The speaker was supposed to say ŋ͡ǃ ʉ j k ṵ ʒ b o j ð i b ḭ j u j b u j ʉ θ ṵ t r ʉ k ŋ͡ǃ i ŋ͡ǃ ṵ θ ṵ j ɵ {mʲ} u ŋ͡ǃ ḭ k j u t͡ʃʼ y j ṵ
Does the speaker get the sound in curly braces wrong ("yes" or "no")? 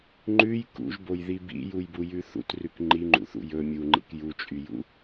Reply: no